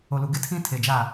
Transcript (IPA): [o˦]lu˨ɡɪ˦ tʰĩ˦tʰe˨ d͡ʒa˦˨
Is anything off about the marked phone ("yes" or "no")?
yes